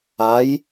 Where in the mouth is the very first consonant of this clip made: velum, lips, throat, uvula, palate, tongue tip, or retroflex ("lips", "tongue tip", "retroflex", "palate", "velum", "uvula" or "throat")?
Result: palate